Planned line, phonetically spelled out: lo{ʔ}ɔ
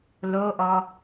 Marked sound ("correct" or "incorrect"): correct